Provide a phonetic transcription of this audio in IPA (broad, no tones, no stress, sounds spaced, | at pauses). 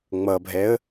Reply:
ŋ͡m ʌ bʱ ɛ ə̯